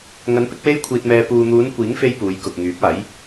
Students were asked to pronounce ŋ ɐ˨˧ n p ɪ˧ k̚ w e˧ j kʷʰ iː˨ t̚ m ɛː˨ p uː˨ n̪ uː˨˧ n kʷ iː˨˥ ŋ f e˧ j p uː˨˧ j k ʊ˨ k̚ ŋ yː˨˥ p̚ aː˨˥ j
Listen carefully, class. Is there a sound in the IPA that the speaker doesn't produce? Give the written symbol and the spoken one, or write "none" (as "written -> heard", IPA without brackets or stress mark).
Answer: none